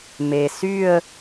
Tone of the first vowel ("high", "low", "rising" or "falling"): low